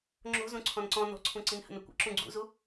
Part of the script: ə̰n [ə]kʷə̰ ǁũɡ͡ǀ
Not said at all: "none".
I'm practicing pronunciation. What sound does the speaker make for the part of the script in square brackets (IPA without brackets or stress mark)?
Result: ə